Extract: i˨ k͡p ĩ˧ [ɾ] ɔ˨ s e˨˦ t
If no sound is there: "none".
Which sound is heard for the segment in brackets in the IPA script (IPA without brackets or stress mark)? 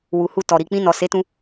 n